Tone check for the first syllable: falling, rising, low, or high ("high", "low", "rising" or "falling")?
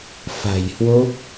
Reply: low